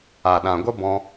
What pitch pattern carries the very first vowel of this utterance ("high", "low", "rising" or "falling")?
low